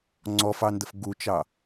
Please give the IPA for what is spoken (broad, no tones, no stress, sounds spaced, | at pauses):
ŋ͡ǀ ɔ f ɑ n d ə f ɡ u t͡ʃ ɑ